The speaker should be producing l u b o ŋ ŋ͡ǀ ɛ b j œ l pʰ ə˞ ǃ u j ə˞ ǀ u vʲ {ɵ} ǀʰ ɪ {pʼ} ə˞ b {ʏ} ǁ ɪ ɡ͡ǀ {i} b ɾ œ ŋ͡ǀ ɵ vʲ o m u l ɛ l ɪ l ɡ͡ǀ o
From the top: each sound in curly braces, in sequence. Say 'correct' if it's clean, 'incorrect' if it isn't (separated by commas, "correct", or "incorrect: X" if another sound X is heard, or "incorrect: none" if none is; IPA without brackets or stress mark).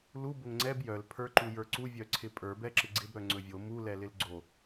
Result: incorrect: œ, correct, incorrect: ɛ, incorrect: ɪ